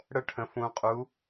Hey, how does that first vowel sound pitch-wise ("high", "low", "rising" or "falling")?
high